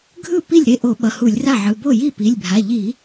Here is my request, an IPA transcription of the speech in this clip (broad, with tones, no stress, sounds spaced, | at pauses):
ɡʱ ɯ˥˩ p i˥˩ lʲ ɾ e˥˩ ʔ o˧˩˧ ɓ ʌ˩˧˩ h u˧˩˧ lʲ r a˥˩ ʕ ɯ˩˧˩ b o˥˩ j i˥˩ p i˩˧˩ lʲ bʱ a˩˧˩ ʎ i˧˩˧